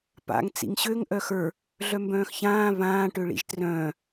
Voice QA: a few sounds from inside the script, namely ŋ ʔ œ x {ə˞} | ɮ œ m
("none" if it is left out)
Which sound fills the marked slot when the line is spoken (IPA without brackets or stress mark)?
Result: ə˞